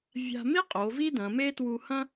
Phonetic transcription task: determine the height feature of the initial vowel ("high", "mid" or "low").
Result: low